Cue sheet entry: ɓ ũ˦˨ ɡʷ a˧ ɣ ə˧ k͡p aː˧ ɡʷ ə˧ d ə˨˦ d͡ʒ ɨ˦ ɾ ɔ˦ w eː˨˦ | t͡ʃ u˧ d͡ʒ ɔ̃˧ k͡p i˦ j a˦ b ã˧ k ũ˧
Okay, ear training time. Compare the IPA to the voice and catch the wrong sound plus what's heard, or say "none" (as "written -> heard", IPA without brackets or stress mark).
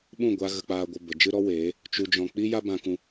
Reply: d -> b